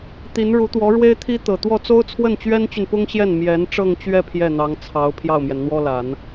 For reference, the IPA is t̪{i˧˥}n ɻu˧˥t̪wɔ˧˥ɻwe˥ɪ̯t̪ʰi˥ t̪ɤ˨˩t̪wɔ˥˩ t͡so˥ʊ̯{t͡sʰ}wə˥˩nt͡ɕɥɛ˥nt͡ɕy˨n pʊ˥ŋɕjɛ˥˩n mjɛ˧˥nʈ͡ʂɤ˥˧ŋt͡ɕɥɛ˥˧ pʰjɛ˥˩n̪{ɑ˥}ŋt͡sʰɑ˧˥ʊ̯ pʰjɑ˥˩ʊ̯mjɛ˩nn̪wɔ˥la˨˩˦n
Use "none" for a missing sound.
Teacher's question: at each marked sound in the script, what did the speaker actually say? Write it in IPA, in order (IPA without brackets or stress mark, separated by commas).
i˧˥, t͡sʰ, ɑ˧˥